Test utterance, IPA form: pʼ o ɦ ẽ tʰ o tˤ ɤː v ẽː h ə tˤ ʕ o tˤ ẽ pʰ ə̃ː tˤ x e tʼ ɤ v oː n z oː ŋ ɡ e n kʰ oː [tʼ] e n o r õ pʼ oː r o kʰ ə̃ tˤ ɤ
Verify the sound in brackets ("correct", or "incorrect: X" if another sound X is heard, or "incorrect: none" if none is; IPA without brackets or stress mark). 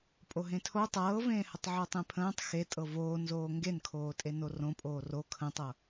correct